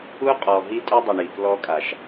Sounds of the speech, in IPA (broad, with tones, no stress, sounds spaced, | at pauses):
u˦ qʼ ɔ˨ ɦ i˦ tʼ u˦ dˤ ʊ˨ ɳ i˨ k l ɔ˦ kʼ a˨ ʃ